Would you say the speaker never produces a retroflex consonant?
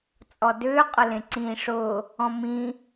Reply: no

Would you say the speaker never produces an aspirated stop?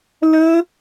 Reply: yes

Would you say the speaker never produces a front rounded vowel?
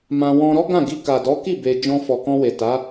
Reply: yes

